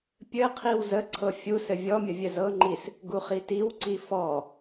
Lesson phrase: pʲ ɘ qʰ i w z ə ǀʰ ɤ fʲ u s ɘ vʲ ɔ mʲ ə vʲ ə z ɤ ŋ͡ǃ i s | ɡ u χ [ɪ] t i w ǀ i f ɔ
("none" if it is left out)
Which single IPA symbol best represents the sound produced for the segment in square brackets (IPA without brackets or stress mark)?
i